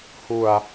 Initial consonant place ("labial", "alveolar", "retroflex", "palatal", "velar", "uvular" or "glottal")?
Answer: glottal